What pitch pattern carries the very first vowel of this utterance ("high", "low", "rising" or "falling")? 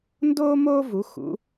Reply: high